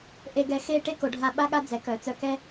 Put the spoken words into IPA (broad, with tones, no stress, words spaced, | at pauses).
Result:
ʔe˧ɡɛ˧ xe˥˧ ʈe˥ko˩˧ɖʱa˧ ɓa˥ɠa˥ d͡zɛ˩˧kœ˩˧t͡sœ˧kɛ˥